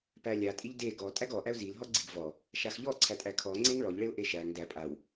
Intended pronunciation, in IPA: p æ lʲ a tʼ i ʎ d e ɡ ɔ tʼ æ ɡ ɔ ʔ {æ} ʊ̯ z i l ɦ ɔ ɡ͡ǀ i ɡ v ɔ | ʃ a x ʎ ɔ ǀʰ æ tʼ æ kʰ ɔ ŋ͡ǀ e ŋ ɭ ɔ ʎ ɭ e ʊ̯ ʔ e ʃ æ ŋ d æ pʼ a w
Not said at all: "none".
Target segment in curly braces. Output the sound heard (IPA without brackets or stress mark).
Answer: æ